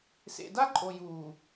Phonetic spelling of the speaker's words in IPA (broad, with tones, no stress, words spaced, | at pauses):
sḛ˨da˦ǃʼo˨ juː˨